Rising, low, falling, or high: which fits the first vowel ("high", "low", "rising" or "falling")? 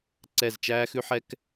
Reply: falling